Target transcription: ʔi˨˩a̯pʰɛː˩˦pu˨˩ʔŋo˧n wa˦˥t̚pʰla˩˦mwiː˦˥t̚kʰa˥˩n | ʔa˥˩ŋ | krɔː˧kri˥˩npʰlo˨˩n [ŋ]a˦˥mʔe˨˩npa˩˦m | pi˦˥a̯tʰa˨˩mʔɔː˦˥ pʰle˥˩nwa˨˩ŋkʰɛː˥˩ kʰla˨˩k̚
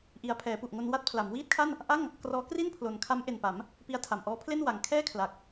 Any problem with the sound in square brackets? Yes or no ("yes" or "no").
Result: yes